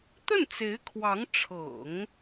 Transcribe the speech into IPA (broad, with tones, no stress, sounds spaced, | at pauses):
t̪ ə˥˩ n t͡s e˧˥ ɪ̯ kʰ w ɑ˧˥ ŋ ʈ͡ʂʰ ɤ̰˨˩˦ ŋ